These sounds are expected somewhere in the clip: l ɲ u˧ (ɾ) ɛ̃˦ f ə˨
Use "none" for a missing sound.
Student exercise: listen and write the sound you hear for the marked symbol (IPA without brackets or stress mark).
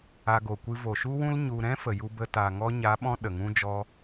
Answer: ɾ